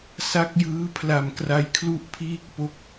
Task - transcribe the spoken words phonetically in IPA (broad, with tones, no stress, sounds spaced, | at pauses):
s a˦˥ k̚ j ɯː˦˥ pʰ l a˨˩ m k r a˦˥ j kʰ l u˥˩ ʔ pʰ iː˥˩ k̚ p o˦˥ k̚